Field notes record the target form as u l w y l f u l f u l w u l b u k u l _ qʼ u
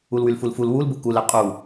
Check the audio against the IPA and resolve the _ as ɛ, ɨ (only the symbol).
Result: ɛ